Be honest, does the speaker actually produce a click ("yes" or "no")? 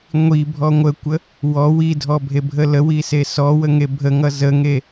no